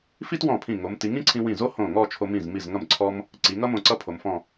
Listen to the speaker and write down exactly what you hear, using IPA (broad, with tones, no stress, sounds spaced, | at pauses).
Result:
f i˥ t w ɔ̃˧˩ pʰ ĩ˧˩ ŋ o˩˧ m t i˩˧ ŋ ĩ˥ ǀʰ ĩ˧ w ĩ˧˩ z o˥ h õ˧˩ ŋ ɔ˥˧ t͡ʃʰ o˧ m ĩ˧˩ z m i˧˩ z ŋ ʌ˧˩ m ǀʰ ɔ˧ m | ǀ i˩˧ ŋ ʌ˥ m õ˧˩ ǀ ʌ˥ pʰ o˩˧ m f ɔ̃˥˧